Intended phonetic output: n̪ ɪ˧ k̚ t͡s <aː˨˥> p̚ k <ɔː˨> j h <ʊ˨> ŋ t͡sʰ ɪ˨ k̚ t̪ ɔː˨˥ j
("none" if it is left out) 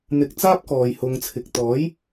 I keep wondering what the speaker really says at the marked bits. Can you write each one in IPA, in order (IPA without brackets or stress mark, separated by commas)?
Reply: aː˥, ɔː˨, ʊ˨